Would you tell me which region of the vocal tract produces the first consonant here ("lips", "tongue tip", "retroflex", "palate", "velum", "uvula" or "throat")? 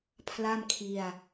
lips